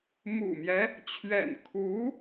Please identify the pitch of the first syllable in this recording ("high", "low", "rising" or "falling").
low